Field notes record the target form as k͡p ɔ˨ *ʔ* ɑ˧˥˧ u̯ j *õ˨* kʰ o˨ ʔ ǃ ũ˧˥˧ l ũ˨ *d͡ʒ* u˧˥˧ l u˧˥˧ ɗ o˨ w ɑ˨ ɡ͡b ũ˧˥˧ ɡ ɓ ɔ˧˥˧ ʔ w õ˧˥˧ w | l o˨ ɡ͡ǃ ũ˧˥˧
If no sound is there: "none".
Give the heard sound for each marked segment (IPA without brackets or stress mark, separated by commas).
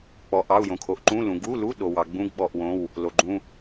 ʔ, õ˨, ɡ